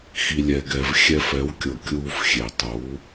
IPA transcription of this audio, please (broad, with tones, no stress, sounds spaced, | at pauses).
x i˩ lʲ ɛ˩ ɡ ɛ˩ v xʲ ɛ˧ f ɛ˩˥ w kʲ ɤ˩ kʲ uː˧ f xʲ e˩ tˤ uː˩˥